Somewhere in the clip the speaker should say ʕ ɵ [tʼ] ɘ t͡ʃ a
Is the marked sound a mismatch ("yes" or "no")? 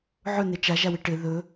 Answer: yes